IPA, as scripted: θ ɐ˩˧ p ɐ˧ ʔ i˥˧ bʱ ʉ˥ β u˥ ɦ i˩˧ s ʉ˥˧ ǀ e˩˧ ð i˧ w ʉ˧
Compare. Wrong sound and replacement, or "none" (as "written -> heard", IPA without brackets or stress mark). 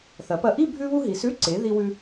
none